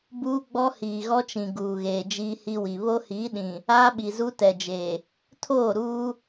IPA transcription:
buː˦ɡ͡bɔ˦hiː˨ ɣɔ˦t͡ʃĩ˨ ɡuː˨ɣeː˨ d͡ʒiː˦hi˦wi˨ βo˦hiː˨˦ɗĩ˨ | aː˦ɓi˨zu˦ tɛ˨d͡ʒeː˨ | tʰoː˦˨ɾuː˦

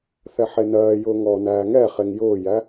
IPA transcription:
θɛħenɜːjʊː ŋɔːnæːŋɛχeŋ jʊːjæ

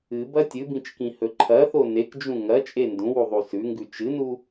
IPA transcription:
ɨbɐ tʲɨbĩt͡ʃkĩhɵ ǃʰɐθo nekd͡ʒũ ŋɐt͡ʃʼe ndũwuðˤu sʉŋɡʉ t͡ʃɨnu

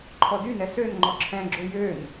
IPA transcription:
ǃʰɔdynɛ søn ŋ͡ǃɔǁʰɛ̃ɡ͡ǁo jøn

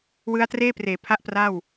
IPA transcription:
wɯ˦˥a̯treː˥˩ preː˩˦pʰa˦˥ʔpra˥˩w

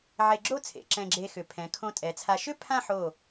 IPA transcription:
ʕe˧ɡ͡ǁo˥˧t͡sʰḛ˩˧ ǁɛ̃˧ɡ͡ǁe˧xʏ˩˧ pʰɛ̃˩˧kʰõ˧tʼɛ˩˧t͡sʰa˧ ʃʏ˥˧ pʰã˥˧ħo˧˩

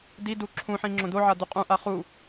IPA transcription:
didu ǁʰũħĩ ŋ͡ǁõd̪oʕa d̪uqʼũʔa χu

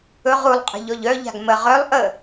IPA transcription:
ɵʁ ulˠqʼə̤ ʎɔʎœʎa̤ɡ mə ʁœlˠ ʔə

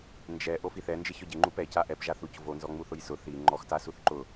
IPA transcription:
nd͡ʒɛ ʔofiθɛ nd͡ʒɪçɔɟɪ ŋ͡ǃupɛ caʔɛp ʒaθuc vo nzɔŋ͡muθʊjsʊ θi ŋ͡ǃɔxtasuθǃʊ

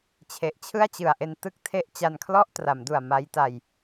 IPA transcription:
t͡ɕʰe˨˩ʔt͡ɕʰɯ˥˩a̯t͡ɕɯ˨˩a̯ʔe˧n tɯ˥˩k̚tʰe˥˩ʔ t͡ɕa˧nkʰlɔ˥˩ʔtra˩˦mdu˨˩a̯ ma˦˥jta˧j

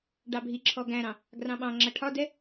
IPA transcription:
ɖɑbʱiǁʰɔ ɡæ̃ɾɑ̃ | ɡrɑ̃ɓɑ̃ŋ͡ǁʌ ʈʰɒdɛ

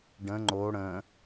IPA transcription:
ɖə̃ ŋ͡ǃo ɽə̃

